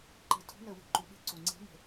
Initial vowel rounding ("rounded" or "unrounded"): unrounded